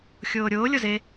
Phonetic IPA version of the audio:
xʲ oː ɾʲ oː lʲ o z e

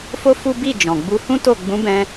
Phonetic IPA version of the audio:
f o˦ f u˦ b i˦˨ d͡ʒ ɔ̃˨ ɡ͡b u˧ h ũ˦ t o˦˨ ɡ͡b ũ˨˦ b ɛ̃˧

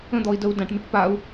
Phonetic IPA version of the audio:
ə̃ d̪ ɔ i̯ d ə u̯ d ã ʈ m i ʈ p a u̯

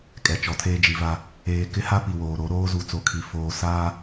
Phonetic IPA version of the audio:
kʼ ɛ˨ t͡ʃ ɔ˨ tʰ eː˦ d͡ʒ i˨ v a˦ | eː˨ k ɪ˦ h a˦ p i˨ w oː˨ ɾ o˨˦ ɾ oː˦ z u˨ t͡s o˨ kʰ i˨ f oː˨ s aː˦

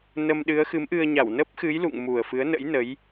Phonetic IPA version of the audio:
n ə˧ m ɗ ɨ˨˦ ə̯ x ɨ˨˦ m ʔ ɨ˧ ə̯ ɲ a˧˩ w n ə˦˥ p̚ x ɨ˨˦ j l ṵ˧˨ ŋ m u˨˩ ə̯ f ɨ˨˦ ə̯ n ə̰˧˥ j n ə˨˦ j

